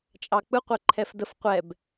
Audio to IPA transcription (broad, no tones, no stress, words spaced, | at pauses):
t͡ʃʼɑk͡pɯ qʷɛǃʰɛfdəf qʷɛb